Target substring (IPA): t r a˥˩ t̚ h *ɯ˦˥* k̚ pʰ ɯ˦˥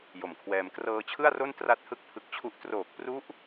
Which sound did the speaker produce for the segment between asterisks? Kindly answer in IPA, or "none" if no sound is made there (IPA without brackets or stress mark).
ɯ˥˩